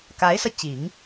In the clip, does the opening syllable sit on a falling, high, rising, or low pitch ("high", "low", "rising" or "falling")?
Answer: rising